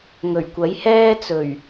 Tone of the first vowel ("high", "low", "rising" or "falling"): low